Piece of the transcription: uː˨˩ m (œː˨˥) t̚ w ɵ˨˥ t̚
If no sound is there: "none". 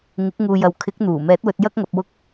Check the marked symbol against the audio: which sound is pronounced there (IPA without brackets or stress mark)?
ɛː˨˥